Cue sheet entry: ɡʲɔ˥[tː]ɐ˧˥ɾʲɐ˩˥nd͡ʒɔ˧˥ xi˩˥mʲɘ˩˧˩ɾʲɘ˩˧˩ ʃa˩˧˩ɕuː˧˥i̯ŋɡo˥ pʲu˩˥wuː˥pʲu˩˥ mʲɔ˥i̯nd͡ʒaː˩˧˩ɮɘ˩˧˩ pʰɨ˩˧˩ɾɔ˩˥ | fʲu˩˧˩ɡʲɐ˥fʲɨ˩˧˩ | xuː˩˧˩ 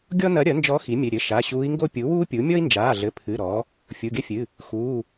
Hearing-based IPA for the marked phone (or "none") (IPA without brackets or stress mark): n